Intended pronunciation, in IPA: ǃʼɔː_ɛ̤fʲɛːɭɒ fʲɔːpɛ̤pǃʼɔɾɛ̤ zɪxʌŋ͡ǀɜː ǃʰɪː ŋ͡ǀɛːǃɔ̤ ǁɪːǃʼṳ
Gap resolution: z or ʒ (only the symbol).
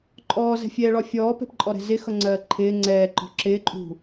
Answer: z